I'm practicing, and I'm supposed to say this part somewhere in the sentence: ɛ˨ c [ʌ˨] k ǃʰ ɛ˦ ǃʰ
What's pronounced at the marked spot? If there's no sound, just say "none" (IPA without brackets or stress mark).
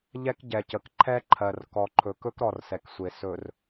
ə˨